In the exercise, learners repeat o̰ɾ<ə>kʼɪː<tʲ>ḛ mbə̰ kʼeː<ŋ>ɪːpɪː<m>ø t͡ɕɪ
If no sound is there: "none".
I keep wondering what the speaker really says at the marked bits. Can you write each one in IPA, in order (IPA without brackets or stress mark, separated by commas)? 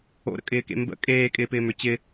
ə̰, k, kʼ, m